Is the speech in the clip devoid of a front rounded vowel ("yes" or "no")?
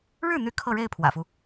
no